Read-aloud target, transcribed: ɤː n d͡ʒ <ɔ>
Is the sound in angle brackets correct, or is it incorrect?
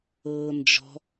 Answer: incorrect